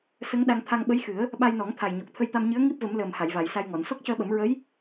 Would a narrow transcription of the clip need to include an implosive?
yes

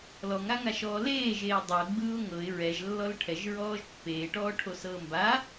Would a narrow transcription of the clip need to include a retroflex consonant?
yes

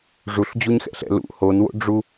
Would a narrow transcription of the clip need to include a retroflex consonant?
yes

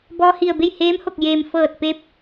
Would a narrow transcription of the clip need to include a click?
no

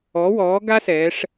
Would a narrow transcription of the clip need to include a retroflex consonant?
yes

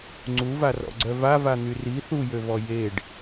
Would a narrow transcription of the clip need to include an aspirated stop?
no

